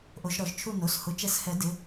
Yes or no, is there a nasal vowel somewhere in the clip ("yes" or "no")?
no